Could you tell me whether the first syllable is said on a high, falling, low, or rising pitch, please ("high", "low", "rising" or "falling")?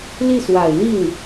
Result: falling